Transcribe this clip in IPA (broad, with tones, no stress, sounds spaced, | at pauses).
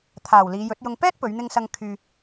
t̪ʰ aː˨ w l iː˨˧ j ɵ˨˥ t̚ j ʊ˧ ŋ p ɛː˥ t̚ p ɵ˨˧ ɥ n̪ ɪ˧ ŋ s ɐ˧ ŋ kʰ yː˧